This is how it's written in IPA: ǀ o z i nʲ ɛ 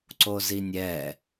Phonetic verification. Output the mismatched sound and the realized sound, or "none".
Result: none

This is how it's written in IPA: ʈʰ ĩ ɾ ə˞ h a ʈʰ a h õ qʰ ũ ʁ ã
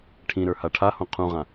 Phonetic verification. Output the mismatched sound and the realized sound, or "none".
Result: none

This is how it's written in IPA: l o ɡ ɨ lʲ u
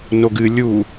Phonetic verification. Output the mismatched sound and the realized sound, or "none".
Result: l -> n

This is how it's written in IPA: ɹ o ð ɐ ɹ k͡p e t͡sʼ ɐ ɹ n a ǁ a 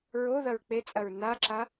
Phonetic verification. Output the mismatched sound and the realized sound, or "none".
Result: none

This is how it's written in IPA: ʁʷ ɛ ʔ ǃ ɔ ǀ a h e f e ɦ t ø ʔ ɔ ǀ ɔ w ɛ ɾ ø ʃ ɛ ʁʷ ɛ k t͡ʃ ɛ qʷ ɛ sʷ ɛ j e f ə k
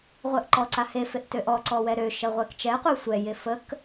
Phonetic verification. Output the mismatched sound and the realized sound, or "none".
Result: ɦ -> ʔ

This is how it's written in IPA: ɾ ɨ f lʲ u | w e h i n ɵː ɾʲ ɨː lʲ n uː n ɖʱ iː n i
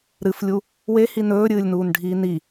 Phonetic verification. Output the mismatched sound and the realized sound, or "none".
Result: none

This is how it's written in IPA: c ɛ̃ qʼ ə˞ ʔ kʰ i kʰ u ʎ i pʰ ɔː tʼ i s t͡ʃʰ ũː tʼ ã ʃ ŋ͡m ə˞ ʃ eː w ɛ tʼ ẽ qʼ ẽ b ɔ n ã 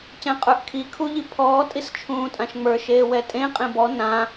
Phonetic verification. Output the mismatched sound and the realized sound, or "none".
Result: none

